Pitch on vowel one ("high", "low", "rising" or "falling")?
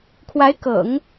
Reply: rising